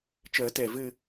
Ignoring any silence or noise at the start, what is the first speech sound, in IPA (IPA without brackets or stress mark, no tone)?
t͡ʃ